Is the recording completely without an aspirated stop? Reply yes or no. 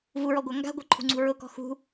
no